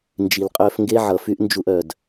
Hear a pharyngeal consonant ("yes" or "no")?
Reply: yes